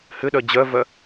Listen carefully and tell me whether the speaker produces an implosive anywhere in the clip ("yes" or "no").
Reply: yes